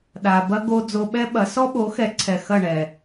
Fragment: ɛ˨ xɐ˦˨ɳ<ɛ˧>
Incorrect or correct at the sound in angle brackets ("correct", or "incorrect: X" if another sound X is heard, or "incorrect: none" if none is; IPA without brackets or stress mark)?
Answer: incorrect: ɛ˨